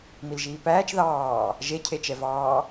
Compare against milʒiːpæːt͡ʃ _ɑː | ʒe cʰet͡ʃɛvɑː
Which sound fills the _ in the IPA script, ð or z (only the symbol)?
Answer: ð